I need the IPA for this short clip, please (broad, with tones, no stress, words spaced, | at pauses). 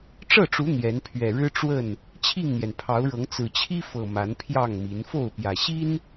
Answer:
ʈ͡ʂɤ˥˨ʈ͡ʂu˨˦ n̪jɛ˨˦n pʰɥɛ˨˩ɻɻ̩˦ ʈ͡ʂwə˥˨n | t͡ɕʰi˥˨ŋn̪jɛ˩npʰɑ˨˦ʊ̯ɻɤ˨˦ŋ t͡sɹ̩˨˩t͡ɕʰi˦fɤ˨˩ ma˨˦npʰjɑ˥˨ŋmi˨˦n fo˥˨ʊ̯pjä˨˩ɕi˦n